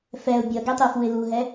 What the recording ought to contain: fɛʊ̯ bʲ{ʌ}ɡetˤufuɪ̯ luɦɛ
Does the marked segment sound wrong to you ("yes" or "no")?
no